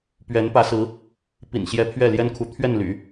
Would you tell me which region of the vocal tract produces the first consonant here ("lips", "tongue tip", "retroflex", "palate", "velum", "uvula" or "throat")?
lips